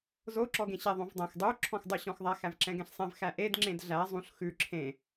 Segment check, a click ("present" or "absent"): present